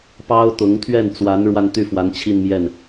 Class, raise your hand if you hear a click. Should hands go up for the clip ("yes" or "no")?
no